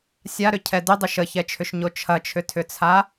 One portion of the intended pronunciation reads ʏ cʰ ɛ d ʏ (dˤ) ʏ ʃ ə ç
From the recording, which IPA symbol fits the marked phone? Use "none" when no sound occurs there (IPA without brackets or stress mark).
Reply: dˤ